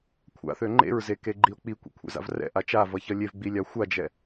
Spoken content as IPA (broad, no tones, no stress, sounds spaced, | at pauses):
kʷʰ a̰ θ ø ŋ͡ǃ ḛ ɹ z e k e ɡ͡ǃ i o̯ k͡p i kʷ ḭ kʷʰ ḛ z a̰ v r ɛ̰ ʔ a t͡ʃ a v ʌ ç ʌ lʲ e v ɡ͡b i lʲ a xʷ a d͡ʒ ɛ